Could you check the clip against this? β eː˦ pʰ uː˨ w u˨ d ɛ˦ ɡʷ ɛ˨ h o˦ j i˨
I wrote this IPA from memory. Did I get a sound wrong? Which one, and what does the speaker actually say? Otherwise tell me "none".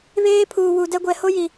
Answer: none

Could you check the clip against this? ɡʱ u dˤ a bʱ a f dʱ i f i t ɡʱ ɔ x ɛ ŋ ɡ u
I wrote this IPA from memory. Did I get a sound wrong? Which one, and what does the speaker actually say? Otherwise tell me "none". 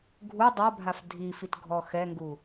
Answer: none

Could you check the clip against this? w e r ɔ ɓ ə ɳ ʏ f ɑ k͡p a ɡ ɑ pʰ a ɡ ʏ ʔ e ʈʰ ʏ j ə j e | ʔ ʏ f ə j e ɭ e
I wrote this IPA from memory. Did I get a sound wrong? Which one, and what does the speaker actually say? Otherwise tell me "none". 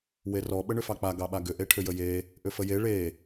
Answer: pʰ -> ɓ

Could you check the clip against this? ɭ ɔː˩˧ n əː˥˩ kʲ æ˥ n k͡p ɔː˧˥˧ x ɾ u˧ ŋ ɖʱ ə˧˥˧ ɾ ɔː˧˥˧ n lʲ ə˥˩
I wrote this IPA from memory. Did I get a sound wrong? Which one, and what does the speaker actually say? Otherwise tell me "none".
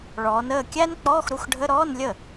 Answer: ŋ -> x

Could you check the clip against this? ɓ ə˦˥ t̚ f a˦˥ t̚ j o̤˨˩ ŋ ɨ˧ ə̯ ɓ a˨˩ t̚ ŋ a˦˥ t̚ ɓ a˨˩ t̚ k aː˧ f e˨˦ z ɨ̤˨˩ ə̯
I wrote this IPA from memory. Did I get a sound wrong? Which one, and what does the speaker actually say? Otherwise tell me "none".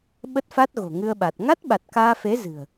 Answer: j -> ɣ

